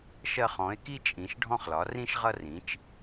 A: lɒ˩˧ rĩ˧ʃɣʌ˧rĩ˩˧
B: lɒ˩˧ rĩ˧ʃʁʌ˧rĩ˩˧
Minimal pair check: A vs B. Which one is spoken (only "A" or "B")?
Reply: B